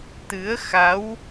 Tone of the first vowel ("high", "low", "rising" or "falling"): rising